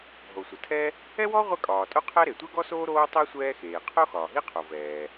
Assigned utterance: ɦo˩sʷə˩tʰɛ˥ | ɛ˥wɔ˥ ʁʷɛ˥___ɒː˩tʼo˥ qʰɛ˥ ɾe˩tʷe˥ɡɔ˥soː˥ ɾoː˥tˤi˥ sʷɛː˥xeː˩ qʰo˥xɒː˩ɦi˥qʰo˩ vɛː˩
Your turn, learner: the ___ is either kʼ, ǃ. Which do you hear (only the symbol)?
kʼ